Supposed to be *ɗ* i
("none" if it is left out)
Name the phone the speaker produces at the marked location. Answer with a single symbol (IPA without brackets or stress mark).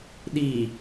ɗ